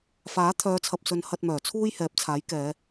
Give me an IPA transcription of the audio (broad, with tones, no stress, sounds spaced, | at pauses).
f aː˨˥ t̪ʰ œː˨˧ t͡sʰ ɐ˨ p̚ s ɵ˨˧ n h ɐ˧ t̚ m œː˨˩ t͡sʰ uː˥ j h ɛː˨˥ p̚ t͡sʰ aː˨˥ j k ɛː˨˧